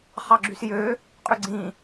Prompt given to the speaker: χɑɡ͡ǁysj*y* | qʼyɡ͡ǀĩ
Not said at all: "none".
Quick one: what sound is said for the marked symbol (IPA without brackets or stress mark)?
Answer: ø